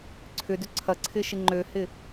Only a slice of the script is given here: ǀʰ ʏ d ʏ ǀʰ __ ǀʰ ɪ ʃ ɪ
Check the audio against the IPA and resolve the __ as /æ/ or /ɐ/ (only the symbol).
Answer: ɐ